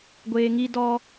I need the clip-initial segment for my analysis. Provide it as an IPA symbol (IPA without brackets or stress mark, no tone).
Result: ɡʷ